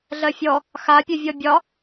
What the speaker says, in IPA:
ɮ ɜ fʲ ɔ | x a pʲ ø vʲ ɔ bʲ ɒ

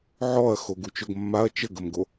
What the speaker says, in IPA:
ʕ ɔ ɐ̯ x o ɡ u t͡ʃ o ɡ mː a ɐ̯ t͡ʃ ə ɡ ə m ɡ o

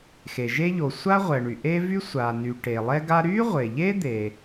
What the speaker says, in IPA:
x e˩ ʒ e˥ ʎ o˩ sʷ a˥ ʁʷ ɛ˩ ɳ y˩ ʔ e˥ v y˥ sʷ a˩ n y˩ ʈ e˩ lˠ ɛ˥ ɡ a˥ ɾ y˥ ʁʷ e˩ ʎ e˥ d̪ e˩

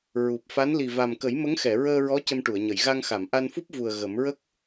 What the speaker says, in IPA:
ɹ u˨˩ p̚ f a˧˥ n l i˨˩ v a˨˩ m k ə˨˩˦ j m ə˧˥ ŋ x ɛ˨˩˨ ɹ əː˧ ɹ ɔ˧˥ c ə˧ m ʈ u˨˩˨ ə̯ ɲ ə˨˩˨ j ɣ a˧ ŋ x a˨˩˨ m ʔ a˧ n f u˦˥ p̚ v u˨˩ ə̯ ɣ ə˨˩˦ m ɹ ə˦˥ k̚

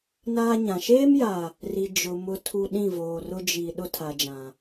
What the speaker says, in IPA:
n aː˦ ɲ ã˨ ʃ eː˦ m j a˨ | r i˨ d͡ʒ ʊ˨ m ʊ˦ tʰ u˦ ɗ ĩ˦˨ v oː˨ r ʊ˦ d͡ʒ i˨ ɗ ʊ˦ tʰ a˨ d͡ʒ ã˨

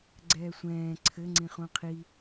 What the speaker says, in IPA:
ɡ͡ǀ ɛː sʷ ɛ̃ː ǀʰ ɘ ŋ͡ǀ ĩ χ ũ qʰ i

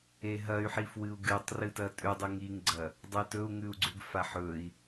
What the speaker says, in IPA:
e ɦ ɐ y̯ ħ i f w ɨ u̯ ɡ ɨ tˤ r ɨ t ɐ tʼ ʉ dˤ ɨ ŋ i ŋ ɡ͡ǀ ɐ | dˤ ɨ t ɵ u̯ ŋ ʉ u̯ ɡ͡ǀ ʉ ɡ f a ħ ɵ i̯

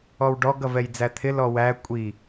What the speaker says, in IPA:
ɔ w ɖ ɔ ɡ ʌ v ɛ j d͡z æ t̪ʰ ɪ l ɔ w æ kʷʼ i

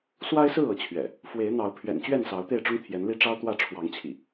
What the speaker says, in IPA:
s w a˦ ɪ̯ s ɹ̩˥˨ ɤ˨˦ t͡ɕʰ ɥ ɛ̰˨˩ | f w e˨˦ ɪ̯ n̪ ɑ˨˦ ʊ̯ pʰ ɥ ɛ̰˨˩ n t͡ɕ ɥ ɛ˥˨ n s ɑ˨˦ ʊ̯ t̪ e˥˨ ɪ̯ ʈ͡ʂ ʊ˦ ŋ t̪ʰ j ɛ˨˦ n l i˦ ʈ͡ʂ ɑ˦ ʊ̯ t̪ w ä˥˨ ʈ͡ʂʰ w ɑ˨˦ ŋ t͡ɕʰ ḭ˨˩

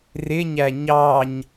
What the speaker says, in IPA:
r ɪ ɲ æ ɲ ɑ ɲ

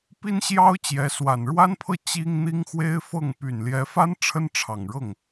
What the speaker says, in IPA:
p i˥ n ɕ j ɑ˥ ʊ̯ t͡ɕ j ɛ˧˥ s w a˨˩ n ɻ w a˥ n pʰ ɤ˥˩ t͡ɕ i˥ ŋ n̪ i˥ ŋ x w e˥ ɪ̯ f ɤ˥˩ ŋ p y˨˩ n l j ɛ˧˥ f a˥ n ʈ͡ʂʰ ə˥ n ʈ͡ʂʰ ɑ˨˩ ŋ ɻ ɤ˥˩ ŋ

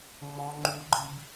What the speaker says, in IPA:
ŋ͡m ɔ̃ ŋ͡ǃ u ɡ͡ǃ i b

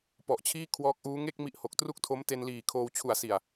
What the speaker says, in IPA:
p ɔ˨˩ ʔ t͡ɕʰ iː˥˩ kʰ w ɔː˦˥ k̚ ʔ uː˦˥ ŋ e˥˩ k̚ m i˦˥ ʔ h o˨˩ k̚ t r u˥˩ k̚ tʰ o˦˥ m t e˧ n l iː˨˩ kʰ oː˧ w t͡ɕʰ u˨˩ a̯ s i˨˩ a̯

